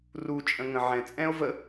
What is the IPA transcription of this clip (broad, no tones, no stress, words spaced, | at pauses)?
ru t͡ʃʼə̃ŋə̃ ʕɛ̃ t͡sʼɛ̃o̯ və